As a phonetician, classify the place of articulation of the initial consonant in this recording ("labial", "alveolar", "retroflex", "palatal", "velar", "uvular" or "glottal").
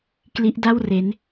velar